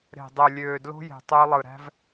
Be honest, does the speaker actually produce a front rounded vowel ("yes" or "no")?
yes